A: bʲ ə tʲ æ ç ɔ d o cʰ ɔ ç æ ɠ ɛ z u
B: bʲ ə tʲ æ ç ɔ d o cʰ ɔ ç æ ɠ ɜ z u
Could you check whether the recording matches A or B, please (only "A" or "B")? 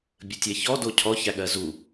B